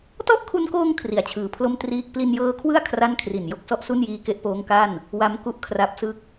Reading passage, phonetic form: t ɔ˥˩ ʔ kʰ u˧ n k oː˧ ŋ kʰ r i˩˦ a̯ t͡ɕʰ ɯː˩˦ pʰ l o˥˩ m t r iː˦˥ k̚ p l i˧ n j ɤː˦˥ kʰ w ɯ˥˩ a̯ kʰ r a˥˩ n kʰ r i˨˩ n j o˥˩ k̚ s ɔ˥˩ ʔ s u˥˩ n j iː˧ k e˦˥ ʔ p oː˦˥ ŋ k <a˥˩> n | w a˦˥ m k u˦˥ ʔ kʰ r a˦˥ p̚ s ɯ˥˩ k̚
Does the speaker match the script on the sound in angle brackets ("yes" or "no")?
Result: yes